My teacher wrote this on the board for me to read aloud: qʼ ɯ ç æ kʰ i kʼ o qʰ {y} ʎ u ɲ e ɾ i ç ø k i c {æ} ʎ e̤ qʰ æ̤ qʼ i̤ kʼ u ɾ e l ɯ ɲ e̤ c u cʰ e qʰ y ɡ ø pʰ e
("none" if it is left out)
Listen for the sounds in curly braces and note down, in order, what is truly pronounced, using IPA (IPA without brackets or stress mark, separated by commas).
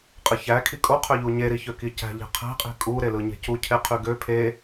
ø, æ̤